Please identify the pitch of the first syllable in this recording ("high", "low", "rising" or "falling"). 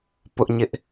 high